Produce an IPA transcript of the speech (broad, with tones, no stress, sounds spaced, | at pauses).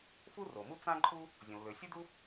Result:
f u˥ r o˩ m u˥ t͡s ã˥ ǃʼ u˥ | zʲ õ˩ lː ø˩ sʲ u˥ d u˥